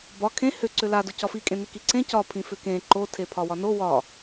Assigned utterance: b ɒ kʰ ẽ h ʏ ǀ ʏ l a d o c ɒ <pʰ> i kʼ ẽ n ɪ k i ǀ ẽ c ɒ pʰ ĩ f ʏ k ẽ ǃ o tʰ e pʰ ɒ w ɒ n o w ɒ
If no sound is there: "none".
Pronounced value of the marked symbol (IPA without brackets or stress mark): f